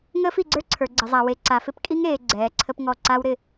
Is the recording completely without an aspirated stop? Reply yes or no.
no